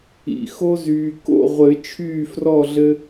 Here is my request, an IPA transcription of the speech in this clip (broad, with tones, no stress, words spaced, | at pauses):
ḭ˨ xo˦zyː˨ ko̰˥˨ʁʷɘ˨˩˦ t͡ʃʰyː˥˨frɔ˥˨ɮɘ˦